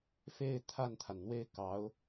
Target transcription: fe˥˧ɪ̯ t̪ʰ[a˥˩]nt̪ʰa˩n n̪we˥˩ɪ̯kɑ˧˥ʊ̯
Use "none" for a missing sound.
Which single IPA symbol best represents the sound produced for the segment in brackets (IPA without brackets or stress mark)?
a˥˩